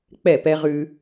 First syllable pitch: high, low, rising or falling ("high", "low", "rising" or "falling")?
falling